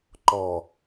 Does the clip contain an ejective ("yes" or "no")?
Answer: no